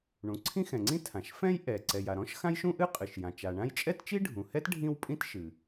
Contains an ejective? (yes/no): yes